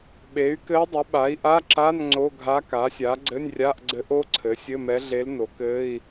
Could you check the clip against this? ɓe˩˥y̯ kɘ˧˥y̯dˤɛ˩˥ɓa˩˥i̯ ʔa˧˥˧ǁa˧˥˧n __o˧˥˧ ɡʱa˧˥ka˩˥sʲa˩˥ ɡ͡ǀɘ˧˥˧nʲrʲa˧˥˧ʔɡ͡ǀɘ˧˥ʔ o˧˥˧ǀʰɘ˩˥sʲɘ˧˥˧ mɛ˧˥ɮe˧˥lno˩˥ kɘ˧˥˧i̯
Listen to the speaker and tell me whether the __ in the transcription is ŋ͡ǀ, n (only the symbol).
ŋ͡ǀ